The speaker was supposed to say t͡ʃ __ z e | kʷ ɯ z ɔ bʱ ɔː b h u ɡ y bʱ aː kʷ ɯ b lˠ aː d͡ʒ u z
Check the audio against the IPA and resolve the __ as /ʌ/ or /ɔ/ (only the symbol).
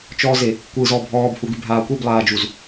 ɔ